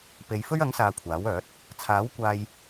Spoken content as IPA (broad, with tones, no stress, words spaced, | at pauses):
pe˨˧jfɵ˥ɥɐ˨˥ŋsaː˨ kʷʰaː˨˥wœː˨˥t̚ | t͡sʰaː˨˥wkʷaː˧j